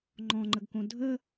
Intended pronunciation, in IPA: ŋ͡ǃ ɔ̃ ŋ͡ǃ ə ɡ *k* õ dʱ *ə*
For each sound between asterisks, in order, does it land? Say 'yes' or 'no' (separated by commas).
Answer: yes, yes